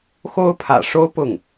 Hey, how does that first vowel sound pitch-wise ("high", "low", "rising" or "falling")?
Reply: high